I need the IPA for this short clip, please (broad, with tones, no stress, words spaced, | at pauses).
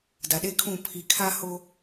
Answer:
da˨ɗe˦kʰũ˦˨ pʰi˨kʰa˦ ho˦